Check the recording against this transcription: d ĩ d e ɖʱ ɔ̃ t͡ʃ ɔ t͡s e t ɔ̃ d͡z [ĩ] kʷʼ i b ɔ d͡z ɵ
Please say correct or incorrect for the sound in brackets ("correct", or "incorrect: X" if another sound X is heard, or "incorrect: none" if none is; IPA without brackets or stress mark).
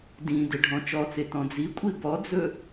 incorrect: i